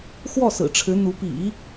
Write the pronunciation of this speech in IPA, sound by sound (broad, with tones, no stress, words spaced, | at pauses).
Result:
xwɔ˥˩ sɹ̩˨˩ʈ͡ʂʰɻ̩˧˥n̪u˧˥ pḭ˨˩˦